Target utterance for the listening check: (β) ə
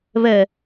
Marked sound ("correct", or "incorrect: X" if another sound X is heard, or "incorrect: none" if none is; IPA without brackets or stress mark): correct